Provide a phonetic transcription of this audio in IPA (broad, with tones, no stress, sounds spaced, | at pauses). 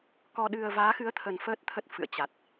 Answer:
k ɔ˧ ɗ ɨ˧ ə̯ v aː˨˦ x ɨ˨˦ ə̯ t̪ʰ ə˨˩ n f əː˦˥ t̚ t̪ʰ ə˦˥ t̚ f ɨ̰˧˨ ə̯ t͡ɕ a˨˩ t̚